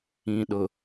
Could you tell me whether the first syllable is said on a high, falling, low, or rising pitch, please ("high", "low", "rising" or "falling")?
low